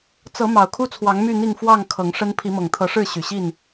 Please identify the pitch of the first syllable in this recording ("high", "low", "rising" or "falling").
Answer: rising